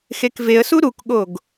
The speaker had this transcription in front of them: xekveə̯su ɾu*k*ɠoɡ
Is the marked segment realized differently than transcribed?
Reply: no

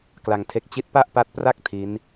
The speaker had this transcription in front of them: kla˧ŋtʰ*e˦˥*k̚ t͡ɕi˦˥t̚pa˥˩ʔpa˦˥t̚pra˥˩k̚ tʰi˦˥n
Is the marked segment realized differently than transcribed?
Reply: no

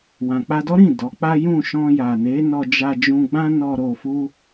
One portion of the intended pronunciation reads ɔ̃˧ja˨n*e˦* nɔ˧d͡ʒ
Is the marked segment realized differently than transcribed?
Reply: yes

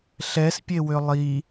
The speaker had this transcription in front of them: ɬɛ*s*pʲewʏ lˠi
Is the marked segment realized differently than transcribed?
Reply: no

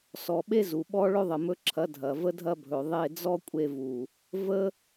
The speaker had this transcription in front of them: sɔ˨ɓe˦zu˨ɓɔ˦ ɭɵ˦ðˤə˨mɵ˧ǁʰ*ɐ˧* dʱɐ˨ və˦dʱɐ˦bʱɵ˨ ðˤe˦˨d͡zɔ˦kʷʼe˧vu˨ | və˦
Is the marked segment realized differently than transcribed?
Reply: yes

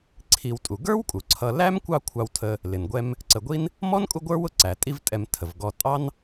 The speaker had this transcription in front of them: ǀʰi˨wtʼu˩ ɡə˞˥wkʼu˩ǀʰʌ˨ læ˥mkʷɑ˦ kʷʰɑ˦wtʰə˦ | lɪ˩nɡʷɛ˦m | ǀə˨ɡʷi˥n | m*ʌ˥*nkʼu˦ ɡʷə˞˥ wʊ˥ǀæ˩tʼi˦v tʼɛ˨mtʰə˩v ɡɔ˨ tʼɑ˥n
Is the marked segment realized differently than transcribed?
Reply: yes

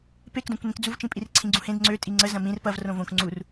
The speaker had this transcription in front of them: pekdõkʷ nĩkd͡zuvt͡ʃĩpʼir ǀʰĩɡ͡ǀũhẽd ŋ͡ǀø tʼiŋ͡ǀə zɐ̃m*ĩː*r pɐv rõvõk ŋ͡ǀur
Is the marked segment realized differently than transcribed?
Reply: yes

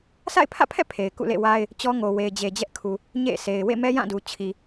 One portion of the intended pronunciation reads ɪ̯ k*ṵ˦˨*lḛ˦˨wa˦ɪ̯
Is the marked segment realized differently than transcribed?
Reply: no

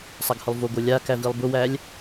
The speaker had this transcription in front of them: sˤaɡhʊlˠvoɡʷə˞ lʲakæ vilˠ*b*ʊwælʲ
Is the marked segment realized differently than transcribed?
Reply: no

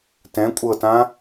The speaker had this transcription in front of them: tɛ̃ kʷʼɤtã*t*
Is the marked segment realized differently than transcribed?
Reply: yes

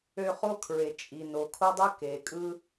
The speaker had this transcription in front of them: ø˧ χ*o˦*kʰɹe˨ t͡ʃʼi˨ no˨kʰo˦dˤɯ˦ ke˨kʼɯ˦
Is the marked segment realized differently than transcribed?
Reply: no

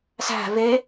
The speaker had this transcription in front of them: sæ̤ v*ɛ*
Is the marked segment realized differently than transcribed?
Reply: yes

